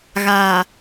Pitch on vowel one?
low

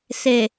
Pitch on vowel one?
low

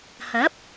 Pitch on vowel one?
rising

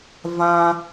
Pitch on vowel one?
high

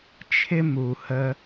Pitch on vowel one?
high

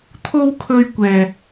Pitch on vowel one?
high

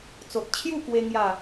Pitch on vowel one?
low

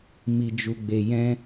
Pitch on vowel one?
low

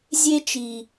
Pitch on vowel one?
high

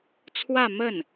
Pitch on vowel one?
falling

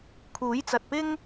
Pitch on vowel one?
rising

